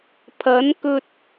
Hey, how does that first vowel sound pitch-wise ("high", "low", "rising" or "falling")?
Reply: rising